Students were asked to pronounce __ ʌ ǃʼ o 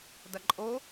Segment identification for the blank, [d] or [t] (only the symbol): d